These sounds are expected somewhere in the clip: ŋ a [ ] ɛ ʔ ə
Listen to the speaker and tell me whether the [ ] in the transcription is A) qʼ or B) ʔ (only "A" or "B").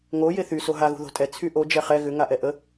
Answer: B